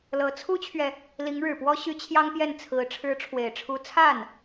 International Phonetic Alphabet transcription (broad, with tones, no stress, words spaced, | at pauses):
lɤ˧˥ t͡sʰu˥t͡ɕʰɥɛ˨ | li˧˥ŋɻɻ̩˨˩pwɔ˥ɕy˧˥ t͡ɕʰjɑ˥ŋpjɛ˥˩nt͡sʰɹ̩˧˥ ʈ͡ʂʰɻ̩˧˥ʈ͡ʂʰwe˨˩ɪ̯ʈ͡ʂʰu˧˥ t͡sʰa˥˩n